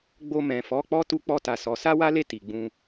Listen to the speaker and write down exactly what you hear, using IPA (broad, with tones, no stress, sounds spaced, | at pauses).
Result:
ɡ͡b o˧ m ɛ̃˨ f ɔ˨˦ k͡p ɔ˦ t u˧ k͡p ɔ˧ t a˨ s ɔ˨˦ s a˦ w a˦ l e˦˨ t i˨ ɡ͡b ũ˧